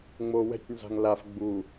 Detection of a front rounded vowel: absent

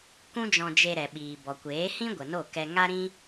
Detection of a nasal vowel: present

